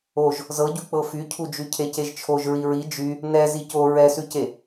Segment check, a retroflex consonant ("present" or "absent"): absent